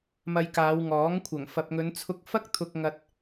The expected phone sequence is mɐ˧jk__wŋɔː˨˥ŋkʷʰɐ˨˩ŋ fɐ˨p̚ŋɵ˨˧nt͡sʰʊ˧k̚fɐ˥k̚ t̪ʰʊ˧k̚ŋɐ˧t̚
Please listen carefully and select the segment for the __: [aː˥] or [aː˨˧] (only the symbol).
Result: aː˨˧